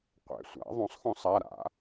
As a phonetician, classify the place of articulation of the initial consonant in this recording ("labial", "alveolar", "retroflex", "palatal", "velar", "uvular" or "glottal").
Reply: uvular